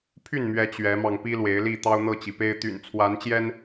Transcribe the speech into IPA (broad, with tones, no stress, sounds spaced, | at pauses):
pʰ y˥˨ n m ɥ ɛ˨˦ t͡ɕ ɥ ɛ˨˦ m ɑ˧ ŋ p i˦ l w e˨˦ ɪ̯ l i˥˨ t̪ ɑ˦ ʊ̯ n̪ ɤ˥˨ t͡ɕ i˩ p e˦ ɪ̯ t̪ y̰˨˩ n t͡sʰ w a˨˦ n t͡ɕ j ɛ˦ n